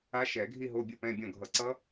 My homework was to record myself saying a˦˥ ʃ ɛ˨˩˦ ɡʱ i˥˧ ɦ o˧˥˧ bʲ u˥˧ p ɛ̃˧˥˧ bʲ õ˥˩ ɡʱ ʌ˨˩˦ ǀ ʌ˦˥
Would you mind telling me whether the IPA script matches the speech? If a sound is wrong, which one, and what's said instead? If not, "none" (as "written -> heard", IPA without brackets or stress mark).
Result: none